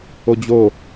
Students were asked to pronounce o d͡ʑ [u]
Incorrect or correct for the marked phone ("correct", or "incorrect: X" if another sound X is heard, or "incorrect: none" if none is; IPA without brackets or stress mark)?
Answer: incorrect: o